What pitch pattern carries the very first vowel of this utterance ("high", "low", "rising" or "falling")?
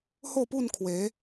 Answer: falling